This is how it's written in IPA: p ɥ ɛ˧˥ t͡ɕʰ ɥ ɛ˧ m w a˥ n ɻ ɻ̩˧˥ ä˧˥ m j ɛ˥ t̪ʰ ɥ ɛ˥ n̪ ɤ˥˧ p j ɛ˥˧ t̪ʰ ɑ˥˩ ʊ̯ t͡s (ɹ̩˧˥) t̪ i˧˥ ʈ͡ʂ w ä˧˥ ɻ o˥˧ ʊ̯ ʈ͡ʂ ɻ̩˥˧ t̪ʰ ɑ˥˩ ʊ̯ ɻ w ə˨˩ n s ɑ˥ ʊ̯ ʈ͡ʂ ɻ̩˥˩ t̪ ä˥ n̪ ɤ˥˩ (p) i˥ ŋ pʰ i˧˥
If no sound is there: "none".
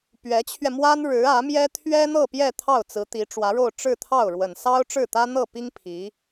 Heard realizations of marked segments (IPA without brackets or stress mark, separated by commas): ɹ̩˧˥, p